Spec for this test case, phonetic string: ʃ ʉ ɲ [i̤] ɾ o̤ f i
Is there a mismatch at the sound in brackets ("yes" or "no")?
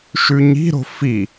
no